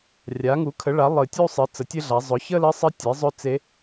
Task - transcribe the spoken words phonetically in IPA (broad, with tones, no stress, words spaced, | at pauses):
rʲa˩˥ŋu˩˥kʰə˩˥ɭa˩˥ lˠɨ˨˩tʲu˥˧sˤɨ˩˥ t͡sə˩˥tʲɘ˥˧ɮa˩˥ zˤʊ˩˥çə˥˧lɘ˧˥sˤɘ˧˥ tʲe˩˥ zˤɵ˥˧t͡se˧˥